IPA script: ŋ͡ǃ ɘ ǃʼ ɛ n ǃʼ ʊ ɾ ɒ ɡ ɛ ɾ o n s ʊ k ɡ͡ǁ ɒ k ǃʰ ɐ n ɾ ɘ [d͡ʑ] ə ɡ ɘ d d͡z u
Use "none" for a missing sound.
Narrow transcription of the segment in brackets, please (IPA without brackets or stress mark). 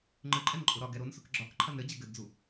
d͡ʑ